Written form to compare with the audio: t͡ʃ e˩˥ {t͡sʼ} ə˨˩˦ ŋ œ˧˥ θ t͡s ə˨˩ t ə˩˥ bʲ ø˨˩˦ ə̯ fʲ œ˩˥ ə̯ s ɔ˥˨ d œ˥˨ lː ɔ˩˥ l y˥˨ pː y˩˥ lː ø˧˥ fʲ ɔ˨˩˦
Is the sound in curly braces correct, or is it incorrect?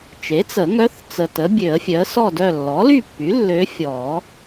incorrect